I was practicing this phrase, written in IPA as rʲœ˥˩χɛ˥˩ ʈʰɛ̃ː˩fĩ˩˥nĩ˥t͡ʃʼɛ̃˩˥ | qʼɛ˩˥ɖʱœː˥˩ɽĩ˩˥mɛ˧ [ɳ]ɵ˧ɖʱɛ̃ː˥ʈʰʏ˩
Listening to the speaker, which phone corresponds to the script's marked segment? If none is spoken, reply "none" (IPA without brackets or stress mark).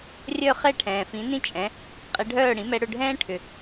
ɽ